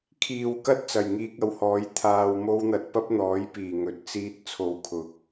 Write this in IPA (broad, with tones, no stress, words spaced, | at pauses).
kʰiː˨wkɐ˥t̚ t͡sɐ˨˩jŋiː˧k̚ɐ˨˧whɔː˨˥j t̪ʰaː˧wmo˥wn̪ɐ˧t̚ pɐ˥p̚n̪ɔː˨˥jpiː˨˩ŋɵ˨˥t̚ t͡siː˧t̚ t͡sʰo˨˧wkʰʊ˨˥k̚